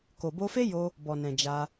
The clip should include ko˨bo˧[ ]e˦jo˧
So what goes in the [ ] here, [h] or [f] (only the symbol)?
f